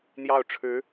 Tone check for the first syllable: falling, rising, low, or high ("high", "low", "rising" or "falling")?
falling